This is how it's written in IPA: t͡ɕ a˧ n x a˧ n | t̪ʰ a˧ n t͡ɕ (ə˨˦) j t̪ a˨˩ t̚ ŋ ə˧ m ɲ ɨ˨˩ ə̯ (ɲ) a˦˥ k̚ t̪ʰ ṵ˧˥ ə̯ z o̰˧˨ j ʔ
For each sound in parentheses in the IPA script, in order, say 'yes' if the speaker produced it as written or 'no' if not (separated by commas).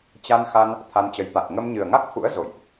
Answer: yes, no